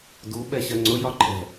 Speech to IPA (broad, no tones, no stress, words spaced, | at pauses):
du ɓɛɕɜŋ͡ǀʊ jɒǃʼɛ̤